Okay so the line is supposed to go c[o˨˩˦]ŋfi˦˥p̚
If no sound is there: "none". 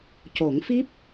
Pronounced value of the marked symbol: o˨˩˦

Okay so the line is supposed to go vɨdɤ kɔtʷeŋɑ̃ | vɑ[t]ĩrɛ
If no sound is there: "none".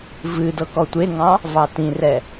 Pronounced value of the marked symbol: t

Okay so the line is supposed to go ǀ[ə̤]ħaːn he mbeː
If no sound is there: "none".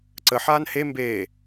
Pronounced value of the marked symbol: ə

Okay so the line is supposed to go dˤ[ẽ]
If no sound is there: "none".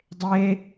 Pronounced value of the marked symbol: e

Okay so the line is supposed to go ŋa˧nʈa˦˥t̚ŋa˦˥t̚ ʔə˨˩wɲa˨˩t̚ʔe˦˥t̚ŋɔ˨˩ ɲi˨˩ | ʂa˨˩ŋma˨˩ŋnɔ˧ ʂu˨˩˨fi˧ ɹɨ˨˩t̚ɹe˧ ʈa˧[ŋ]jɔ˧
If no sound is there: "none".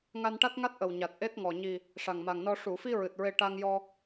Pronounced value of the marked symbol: ŋ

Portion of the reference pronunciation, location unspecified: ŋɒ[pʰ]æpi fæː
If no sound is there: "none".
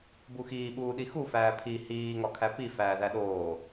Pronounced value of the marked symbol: kʰ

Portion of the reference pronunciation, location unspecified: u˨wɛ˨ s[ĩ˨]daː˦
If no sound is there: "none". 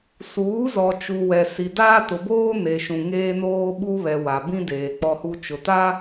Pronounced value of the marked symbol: i˨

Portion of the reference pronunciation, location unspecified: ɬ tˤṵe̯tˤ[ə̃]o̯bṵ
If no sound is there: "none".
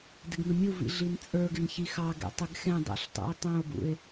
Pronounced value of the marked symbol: œ̃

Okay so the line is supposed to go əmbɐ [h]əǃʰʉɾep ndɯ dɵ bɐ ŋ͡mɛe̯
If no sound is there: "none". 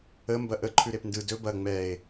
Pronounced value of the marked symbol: ʔ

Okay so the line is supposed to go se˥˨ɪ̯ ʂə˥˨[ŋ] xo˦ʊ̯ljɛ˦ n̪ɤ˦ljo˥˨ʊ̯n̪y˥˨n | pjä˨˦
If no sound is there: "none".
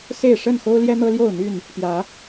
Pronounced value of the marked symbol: n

